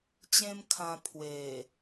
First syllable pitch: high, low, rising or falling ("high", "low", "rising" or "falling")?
high